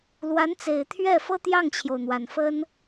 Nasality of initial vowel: oral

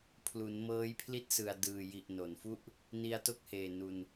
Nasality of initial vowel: oral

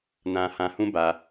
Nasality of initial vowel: nasal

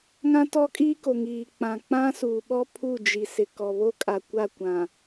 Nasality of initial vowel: nasal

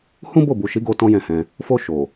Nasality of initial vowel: nasal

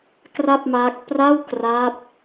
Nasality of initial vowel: oral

